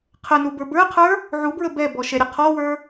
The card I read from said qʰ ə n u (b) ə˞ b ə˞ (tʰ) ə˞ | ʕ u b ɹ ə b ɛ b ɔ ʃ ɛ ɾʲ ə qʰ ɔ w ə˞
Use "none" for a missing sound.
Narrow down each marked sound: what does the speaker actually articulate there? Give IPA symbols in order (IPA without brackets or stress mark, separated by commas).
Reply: b, qʰ